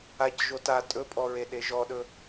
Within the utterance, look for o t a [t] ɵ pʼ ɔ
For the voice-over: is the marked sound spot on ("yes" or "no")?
no